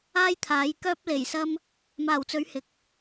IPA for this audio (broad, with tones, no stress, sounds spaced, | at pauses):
aː˥ j t̪ʰ aː˨˥ j k œː˥ p̚ l e˨˩ j s ɐ˥ m | m aː˨˩ w t͡s ɵ˨˥ ɥ h ɪ˨ k̚